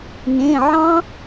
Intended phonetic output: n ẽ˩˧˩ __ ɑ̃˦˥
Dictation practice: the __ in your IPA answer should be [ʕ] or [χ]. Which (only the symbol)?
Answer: ʕ